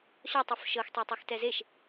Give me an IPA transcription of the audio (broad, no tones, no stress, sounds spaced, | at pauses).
ɕ ɔ tˤ o f ʃ ɤ x tˤ ɛ tˤ i x t ɛ z e ʃ